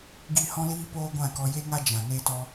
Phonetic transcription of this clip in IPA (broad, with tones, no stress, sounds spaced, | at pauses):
ɡ i˦˨ h ɔ̃˦ l iː˦ p oː˦ ɡʷ ã˦˨ k ɔ˧ j e˦ ŋ a˦ d͡ʒ ã˨ n eː˦ t ɔ˦